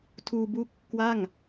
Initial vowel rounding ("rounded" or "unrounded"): rounded